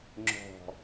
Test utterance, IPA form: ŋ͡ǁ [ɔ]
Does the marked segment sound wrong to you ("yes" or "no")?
yes